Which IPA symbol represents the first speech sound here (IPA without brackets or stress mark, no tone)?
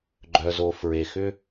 ɡ͡ǃ